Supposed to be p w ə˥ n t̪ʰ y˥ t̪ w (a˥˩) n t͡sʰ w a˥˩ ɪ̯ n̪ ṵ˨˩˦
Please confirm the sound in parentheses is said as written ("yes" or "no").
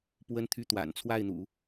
no